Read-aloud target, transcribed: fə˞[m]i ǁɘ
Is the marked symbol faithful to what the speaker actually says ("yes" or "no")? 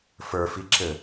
no